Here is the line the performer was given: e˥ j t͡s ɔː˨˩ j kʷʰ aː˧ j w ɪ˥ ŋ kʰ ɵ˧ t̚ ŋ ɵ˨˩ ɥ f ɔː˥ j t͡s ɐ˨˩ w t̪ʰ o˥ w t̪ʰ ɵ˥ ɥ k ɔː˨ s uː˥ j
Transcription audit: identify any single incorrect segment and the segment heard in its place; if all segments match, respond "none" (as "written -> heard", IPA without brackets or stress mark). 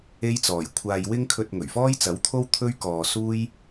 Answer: ɐ˨˩ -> ɐ˨˥